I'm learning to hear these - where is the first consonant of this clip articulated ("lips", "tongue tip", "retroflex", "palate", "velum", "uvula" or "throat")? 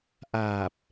throat